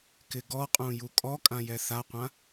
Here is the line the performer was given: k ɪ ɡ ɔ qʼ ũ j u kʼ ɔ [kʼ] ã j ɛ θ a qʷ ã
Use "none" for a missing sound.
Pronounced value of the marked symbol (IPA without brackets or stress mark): kʼ